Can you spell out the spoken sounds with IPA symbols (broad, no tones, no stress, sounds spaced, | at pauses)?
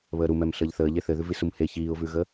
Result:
β əː ɾ u m ɛ m ɬ əː ʎ θ əː ʎ e θ ɘ ð ʉ v i s u m h e ç iː ʊ̯ v ʉ ɣ ə